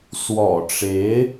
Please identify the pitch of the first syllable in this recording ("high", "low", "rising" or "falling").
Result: low